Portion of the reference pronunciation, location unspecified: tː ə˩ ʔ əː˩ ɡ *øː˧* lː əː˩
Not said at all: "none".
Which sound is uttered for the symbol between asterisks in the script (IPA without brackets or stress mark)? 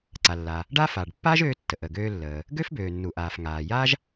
øː˧